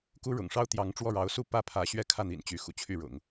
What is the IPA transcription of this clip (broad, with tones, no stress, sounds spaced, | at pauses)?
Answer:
k u˥ ɻ ʊ̰˨˩ ŋ ʂ ɑ˥ ʊ̯ t̪ j ɑ˧˥ ŋ ʈ͡ʂ w ɔ˥˩ ɻ ɑ˧˥ ʊ̯ s u˥˧ p ä˥˩ pʰ ä˧˥ ɕ ɥ ɛ˥˧ kʰ ä˥˩ n̪ ḭ˨˩ n t͡ɕ y˧˥ x ṵ˨˩ t͡ɕʰ y˥˩ ɻ ʊ̰˨˩˦ ŋ